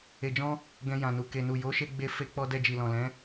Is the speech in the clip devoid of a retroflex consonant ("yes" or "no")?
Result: yes